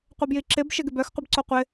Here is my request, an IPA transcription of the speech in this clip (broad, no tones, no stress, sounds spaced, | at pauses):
qʷ ɪ b j i ǁ ɪ b ʃ ɪ ɡ ɪ b œ x qʷ ɪ b ǀ o qʷ ɪ